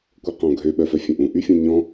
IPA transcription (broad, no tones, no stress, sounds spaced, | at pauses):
kʷ œ q ɔ̃ ɡʱ ø ɓ œ f œ fʲ ɛ̃ ʔ ũ ʔ y fʲ ũ ɲ ɔ̃